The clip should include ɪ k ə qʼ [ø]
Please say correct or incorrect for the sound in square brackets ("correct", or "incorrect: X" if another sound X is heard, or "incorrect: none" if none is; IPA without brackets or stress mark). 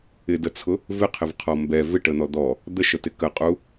incorrect: u